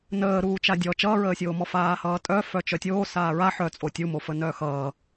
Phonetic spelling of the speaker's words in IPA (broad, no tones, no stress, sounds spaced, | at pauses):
n əː ɾ uː t͡ʃ a dʲ ɔ t͡ʃ ʌː ɹ əː sʲ oː m ɔ f aː h ʌː tʼ œ f œ t͡ʃ œ tʲ oː s aː ɹ a ħ œ t͡sʼ o tʲ u m o f ə n œ x ʌː